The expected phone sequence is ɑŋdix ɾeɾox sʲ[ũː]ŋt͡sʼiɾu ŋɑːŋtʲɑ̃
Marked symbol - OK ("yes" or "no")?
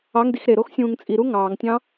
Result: yes